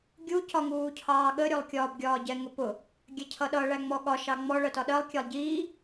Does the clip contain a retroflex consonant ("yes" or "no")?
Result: yes